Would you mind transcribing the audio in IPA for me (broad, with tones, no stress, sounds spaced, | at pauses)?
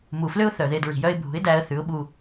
m u˨ f l ø˦ ʊ̯ θ œ˨ ð e˧ d ɹ i̤˨ j œ˦ ɪ̯ bʱ ṳ˨˦ ɪ̯ d æ˧ ə̯ θ ʉ˨˦ ʊ̯ ɓ u˧